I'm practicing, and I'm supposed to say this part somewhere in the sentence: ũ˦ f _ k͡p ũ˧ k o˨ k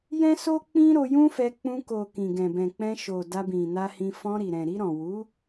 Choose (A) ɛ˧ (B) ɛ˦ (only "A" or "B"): A